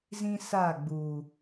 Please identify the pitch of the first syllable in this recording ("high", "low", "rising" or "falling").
high